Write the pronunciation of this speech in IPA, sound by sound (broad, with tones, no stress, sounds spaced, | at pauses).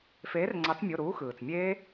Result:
f eː˩˥ r ŋ͡ǀ ɑ˩˥ t͡s mʲ o˩˧˩ ɾ uː˩˥ x ɯː˩ t͡s mʲ eː˦˥